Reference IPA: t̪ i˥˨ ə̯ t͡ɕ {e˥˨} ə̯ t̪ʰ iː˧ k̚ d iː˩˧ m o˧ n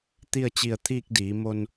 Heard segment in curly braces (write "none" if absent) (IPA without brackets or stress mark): i˥˨